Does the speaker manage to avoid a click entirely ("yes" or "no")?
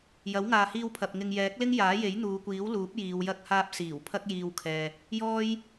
yes